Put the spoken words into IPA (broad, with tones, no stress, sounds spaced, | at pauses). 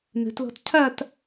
n ə̤˩˧ t l ɔ̤˧ t cʰ a˥˧ t